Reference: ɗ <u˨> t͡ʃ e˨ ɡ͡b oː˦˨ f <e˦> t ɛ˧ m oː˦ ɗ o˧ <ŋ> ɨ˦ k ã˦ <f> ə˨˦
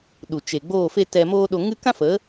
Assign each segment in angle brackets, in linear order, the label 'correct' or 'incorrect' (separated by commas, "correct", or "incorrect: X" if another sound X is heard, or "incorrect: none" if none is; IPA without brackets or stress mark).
correct, correct, correct, correct